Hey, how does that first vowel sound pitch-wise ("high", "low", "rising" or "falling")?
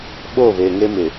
falling